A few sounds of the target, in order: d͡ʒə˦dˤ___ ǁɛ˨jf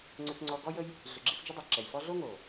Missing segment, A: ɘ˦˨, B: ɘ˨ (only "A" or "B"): B